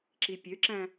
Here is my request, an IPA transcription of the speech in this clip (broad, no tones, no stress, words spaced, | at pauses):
ǁipʲøǁæ̃